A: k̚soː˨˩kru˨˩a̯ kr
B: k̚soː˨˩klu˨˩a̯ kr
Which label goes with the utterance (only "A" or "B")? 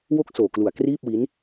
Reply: B